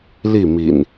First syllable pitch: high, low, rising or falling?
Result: falling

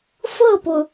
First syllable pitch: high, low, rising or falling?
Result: falling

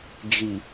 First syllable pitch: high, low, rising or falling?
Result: low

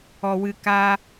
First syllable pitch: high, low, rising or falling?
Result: low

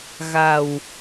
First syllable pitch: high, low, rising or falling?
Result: low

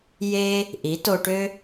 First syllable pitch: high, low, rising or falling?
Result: high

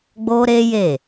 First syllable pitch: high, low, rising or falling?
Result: high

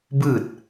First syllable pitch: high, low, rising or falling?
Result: falling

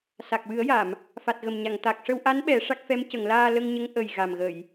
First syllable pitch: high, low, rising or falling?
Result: low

